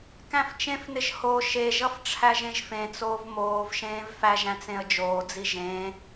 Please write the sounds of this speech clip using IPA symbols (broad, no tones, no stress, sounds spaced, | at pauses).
k æ̃ f t͡ʃ ẽ f n ɪ ʒ h o ʃ e ʒ ʌ f ʈ͡ʂʰ æ ʒ ẽ ʒ f ẽ t͡s oː v m oː v ʃ ẽː v f æ ʒ æ̃ t͡s ẽ ə̯ d͡ʒ oː d͡z i ʒ ẽː